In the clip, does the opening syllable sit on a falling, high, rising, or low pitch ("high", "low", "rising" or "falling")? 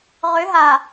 rising